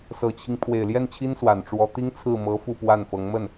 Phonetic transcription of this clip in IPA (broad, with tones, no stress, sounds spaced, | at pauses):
s ɤ˨˩ t͡ɕʰ i˦ ŋ pʰ w e˨˩ ɪ̯ l j ɛ˥˩ n t͡ɕʰ i˥ n s w a˨˩ n ʈ͡ʂ w ɔ˧˥ t̪ i˥ ŋ t͡sʰ ɹ̩˥˩ m ɤ˧˥ f u˥˧ p w a˥˩ n f ɤ˧˥ ŋ m ə˥˩ n